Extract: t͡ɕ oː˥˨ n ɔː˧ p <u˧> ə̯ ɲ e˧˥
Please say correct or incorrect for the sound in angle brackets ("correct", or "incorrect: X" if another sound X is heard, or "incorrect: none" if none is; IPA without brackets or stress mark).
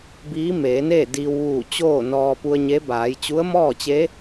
correct